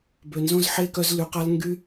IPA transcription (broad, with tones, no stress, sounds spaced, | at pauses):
b ø˨ n z õ˦ z ħ e˦ k œ˧ z l y˨ q a˧ l ŋ ɡ y˧